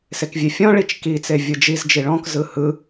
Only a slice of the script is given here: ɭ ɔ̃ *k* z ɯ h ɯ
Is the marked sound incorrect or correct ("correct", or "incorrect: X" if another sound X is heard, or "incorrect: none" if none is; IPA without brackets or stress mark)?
correct